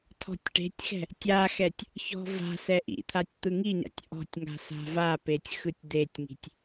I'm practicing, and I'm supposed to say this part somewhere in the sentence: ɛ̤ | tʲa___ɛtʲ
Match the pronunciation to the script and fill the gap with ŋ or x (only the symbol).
x